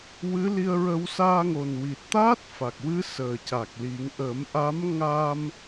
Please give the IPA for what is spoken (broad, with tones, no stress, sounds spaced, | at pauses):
w ɨ˧˥ l i˧ ə̯ ɹ ə˧ w s aː˧ ŋ o˨˩ n w i˨˩ t̚ t̪ aː˦˥ t̚ f a˨˩ k̚ w ɨ˧˥ s əː˨˩ c a˨˩ k̚ l i˨˩˦ ŋ ʔ ə˨˩˦ m ʔ a˧˥ m ŋ a˧ m